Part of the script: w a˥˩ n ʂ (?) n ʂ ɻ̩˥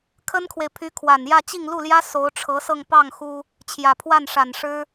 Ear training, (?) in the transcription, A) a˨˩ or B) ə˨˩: A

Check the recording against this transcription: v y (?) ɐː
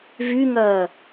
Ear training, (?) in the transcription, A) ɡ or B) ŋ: B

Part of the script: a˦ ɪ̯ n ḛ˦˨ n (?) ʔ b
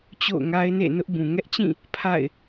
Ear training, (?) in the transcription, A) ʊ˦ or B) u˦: A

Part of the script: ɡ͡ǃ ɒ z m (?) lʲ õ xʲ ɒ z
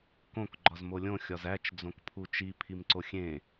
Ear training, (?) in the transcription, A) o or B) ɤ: A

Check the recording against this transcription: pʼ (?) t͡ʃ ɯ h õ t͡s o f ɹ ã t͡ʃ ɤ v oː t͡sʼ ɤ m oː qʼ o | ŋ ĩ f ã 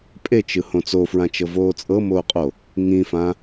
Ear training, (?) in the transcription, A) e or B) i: A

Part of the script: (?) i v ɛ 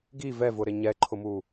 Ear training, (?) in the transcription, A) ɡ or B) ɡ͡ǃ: A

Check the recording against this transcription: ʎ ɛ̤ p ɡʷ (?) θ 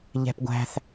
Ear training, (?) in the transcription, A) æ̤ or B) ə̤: A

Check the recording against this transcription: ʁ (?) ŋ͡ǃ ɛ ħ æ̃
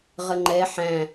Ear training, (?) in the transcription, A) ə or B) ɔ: A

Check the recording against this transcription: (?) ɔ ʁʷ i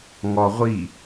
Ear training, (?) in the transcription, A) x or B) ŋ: B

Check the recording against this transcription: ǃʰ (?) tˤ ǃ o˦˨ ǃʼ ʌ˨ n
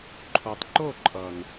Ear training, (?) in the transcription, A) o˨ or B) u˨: A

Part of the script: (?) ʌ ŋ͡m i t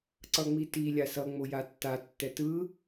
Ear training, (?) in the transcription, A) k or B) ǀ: B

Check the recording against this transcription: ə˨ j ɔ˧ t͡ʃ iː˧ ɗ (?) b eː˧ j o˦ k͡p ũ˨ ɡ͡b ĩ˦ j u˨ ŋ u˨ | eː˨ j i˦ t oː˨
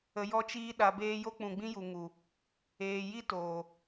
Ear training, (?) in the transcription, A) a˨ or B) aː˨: A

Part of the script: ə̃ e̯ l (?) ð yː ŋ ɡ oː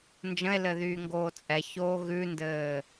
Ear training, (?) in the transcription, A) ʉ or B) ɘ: B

